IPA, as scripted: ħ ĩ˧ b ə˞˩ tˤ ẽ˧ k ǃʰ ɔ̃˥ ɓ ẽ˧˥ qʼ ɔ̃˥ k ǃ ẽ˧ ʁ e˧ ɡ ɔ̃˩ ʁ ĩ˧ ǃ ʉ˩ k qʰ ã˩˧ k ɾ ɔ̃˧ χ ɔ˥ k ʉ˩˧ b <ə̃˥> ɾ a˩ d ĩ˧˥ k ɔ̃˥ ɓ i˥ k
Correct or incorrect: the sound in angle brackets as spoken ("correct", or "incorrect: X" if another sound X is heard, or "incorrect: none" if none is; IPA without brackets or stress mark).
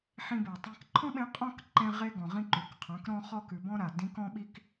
incorrect: ɔ̃˥